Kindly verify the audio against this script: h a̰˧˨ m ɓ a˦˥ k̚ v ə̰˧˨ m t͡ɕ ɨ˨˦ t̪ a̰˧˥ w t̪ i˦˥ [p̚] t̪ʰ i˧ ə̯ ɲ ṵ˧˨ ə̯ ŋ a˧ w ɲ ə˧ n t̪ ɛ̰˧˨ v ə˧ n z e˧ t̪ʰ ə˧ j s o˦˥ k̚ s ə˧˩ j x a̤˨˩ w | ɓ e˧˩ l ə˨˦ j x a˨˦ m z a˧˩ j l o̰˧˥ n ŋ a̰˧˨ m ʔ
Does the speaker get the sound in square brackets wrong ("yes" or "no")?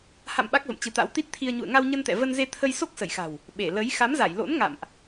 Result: yes